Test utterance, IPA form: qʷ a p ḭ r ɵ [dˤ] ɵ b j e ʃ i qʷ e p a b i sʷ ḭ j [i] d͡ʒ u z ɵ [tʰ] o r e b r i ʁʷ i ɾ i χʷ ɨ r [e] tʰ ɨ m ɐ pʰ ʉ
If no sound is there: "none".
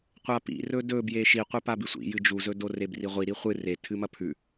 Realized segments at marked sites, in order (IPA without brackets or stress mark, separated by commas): d, ɨ, d, e